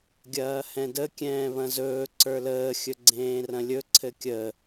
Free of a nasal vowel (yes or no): no